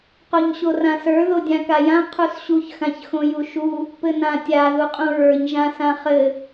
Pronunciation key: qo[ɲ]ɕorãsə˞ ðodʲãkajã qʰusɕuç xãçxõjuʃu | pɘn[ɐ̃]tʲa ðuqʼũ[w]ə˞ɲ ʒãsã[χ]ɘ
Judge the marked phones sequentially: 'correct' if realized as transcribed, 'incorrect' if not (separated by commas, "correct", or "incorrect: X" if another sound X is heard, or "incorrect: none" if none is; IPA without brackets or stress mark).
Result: correct, incorrect: ã, incorrect: ɹ, correct